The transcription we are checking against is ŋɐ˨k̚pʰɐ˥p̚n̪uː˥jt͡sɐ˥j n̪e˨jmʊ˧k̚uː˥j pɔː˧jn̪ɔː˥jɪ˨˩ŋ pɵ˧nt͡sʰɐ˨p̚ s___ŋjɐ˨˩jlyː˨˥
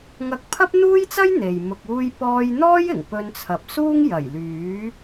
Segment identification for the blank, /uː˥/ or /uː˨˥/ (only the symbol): uː˥